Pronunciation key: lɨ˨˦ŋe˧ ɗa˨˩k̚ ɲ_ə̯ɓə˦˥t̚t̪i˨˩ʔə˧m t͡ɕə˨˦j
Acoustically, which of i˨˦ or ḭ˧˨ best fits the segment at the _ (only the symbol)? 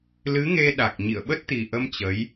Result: ḭ˧˨